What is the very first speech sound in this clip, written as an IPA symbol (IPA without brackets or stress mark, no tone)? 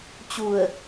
t͡ɕ